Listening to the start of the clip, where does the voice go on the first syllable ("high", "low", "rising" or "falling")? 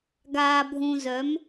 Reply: low